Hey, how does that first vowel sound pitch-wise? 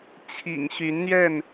low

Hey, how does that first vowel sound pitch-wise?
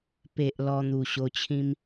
low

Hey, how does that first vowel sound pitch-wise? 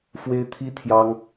high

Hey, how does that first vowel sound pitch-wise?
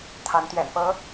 rising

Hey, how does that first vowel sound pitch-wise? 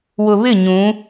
low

